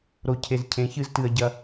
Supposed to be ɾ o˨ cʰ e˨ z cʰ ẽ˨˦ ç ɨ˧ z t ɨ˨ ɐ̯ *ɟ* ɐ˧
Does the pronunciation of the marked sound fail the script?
no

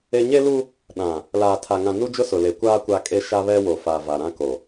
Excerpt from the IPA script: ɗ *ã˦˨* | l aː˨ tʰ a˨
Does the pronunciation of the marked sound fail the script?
yes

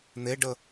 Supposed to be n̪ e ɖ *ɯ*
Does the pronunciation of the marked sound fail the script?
yes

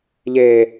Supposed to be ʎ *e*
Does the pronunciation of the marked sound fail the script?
no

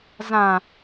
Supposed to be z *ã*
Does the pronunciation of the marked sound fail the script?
no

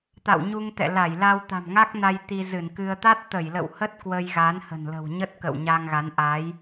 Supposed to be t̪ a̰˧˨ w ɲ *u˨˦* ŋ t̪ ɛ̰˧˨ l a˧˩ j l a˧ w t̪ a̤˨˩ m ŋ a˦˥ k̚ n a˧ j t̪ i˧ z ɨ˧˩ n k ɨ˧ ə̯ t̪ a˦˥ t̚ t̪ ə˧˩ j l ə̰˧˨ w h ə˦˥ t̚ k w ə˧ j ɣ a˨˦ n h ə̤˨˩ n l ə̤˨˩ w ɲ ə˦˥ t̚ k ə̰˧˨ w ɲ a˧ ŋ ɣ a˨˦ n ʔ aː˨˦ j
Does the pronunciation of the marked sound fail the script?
yes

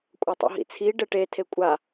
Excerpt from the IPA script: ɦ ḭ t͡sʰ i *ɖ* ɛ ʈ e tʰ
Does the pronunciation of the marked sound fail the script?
no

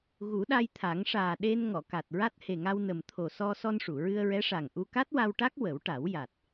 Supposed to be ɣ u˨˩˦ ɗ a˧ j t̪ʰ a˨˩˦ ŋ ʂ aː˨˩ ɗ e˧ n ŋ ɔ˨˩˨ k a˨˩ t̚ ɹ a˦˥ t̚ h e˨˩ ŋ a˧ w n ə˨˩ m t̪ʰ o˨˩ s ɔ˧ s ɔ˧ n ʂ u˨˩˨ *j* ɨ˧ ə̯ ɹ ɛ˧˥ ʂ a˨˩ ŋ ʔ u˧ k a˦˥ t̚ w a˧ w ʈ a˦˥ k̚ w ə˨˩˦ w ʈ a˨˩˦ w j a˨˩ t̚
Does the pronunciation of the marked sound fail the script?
yes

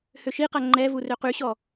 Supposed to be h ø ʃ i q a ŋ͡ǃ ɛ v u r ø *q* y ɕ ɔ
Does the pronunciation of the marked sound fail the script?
no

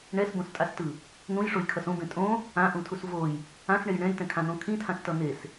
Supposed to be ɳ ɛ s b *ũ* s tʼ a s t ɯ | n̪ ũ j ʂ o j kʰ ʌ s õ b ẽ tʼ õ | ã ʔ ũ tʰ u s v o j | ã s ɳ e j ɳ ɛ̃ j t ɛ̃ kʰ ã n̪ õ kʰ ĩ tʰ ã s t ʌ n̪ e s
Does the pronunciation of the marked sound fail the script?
yes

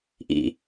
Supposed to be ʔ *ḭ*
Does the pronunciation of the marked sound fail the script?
no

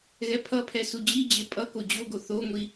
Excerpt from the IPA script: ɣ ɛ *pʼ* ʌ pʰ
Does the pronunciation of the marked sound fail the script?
yes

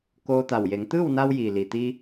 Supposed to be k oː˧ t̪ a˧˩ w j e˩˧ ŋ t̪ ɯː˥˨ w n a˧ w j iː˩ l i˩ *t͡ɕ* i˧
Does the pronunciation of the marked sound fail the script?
yes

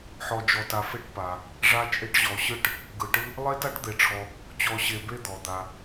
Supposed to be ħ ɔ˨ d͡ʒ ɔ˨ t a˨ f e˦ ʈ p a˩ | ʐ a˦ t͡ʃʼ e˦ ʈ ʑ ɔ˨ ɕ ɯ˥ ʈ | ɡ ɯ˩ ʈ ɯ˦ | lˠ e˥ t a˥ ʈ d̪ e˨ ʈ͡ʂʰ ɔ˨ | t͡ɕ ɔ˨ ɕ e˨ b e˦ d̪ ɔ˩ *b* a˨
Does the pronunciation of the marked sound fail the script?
yes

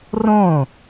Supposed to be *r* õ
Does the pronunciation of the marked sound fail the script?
no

